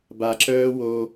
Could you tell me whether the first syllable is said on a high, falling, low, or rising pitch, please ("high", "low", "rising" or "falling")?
low